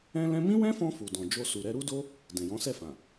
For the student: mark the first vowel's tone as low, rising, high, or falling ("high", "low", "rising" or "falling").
high